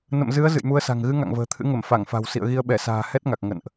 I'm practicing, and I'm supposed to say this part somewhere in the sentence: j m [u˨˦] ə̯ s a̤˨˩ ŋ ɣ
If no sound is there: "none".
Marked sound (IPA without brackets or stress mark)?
u˨˦